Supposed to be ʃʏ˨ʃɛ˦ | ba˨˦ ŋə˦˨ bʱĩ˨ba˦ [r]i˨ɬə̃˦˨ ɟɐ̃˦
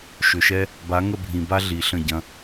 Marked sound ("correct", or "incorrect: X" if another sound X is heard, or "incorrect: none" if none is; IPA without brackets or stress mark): incorrect: ɮ